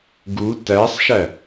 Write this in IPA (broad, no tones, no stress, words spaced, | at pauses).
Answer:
ɡu tæsˤʃæ